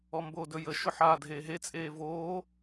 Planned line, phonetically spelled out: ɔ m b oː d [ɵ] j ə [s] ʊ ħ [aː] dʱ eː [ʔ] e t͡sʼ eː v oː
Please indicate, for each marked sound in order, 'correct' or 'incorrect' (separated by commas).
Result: correct, incorrect, correct, incorrect